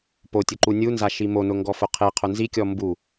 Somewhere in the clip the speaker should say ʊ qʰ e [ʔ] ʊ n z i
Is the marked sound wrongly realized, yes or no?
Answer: yes